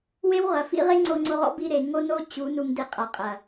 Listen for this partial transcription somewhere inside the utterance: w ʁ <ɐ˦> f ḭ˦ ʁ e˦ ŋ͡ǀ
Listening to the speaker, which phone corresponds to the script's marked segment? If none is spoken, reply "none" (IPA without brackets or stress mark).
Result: ɐ˨